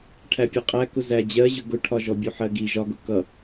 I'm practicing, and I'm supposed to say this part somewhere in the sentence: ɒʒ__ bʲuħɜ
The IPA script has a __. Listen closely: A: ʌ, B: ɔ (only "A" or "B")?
B